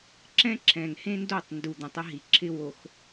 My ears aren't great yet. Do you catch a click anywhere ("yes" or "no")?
yes